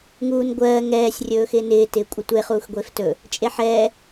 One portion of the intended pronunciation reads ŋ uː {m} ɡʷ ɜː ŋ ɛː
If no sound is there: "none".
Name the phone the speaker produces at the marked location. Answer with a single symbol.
n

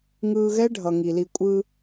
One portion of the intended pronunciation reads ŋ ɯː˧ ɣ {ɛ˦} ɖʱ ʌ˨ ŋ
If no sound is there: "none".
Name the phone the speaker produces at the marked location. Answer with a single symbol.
ɛ˦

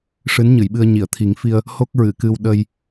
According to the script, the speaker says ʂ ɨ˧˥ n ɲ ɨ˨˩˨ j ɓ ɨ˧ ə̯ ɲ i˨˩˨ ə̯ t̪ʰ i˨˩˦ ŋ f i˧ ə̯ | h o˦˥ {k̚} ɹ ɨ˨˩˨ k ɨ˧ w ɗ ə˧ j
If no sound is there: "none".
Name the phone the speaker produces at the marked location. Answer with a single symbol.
k̚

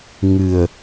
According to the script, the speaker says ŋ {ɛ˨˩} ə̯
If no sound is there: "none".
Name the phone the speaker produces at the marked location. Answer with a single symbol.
ɨ˨˩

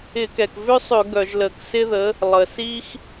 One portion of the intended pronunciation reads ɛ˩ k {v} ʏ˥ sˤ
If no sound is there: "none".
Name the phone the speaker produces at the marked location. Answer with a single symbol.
v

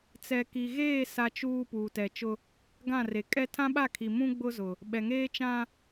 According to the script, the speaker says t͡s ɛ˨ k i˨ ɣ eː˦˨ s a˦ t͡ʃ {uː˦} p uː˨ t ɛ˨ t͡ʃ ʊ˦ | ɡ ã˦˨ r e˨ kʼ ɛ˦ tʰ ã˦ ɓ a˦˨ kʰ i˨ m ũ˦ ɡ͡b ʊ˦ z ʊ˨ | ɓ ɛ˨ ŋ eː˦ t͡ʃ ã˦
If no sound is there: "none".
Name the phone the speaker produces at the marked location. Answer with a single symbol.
uː˦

